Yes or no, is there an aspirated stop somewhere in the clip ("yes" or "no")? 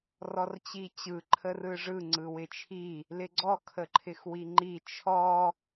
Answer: yes